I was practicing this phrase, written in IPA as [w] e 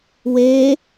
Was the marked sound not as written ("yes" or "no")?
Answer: no